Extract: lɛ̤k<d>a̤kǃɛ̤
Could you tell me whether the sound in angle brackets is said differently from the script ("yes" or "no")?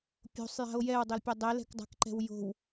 yes